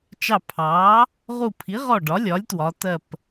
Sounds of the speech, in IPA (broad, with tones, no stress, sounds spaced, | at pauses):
t͡ʃ ɑ˧˩ pʰ ɑː˩˥ | ʁ u˧˩ pʰ i˩˥ ʁ ɔ˧˩ ɖ ɒ˩˥ lʲ ɒ˩˥ lʲ t w ɒ˩˧ t ɜ˧˩ p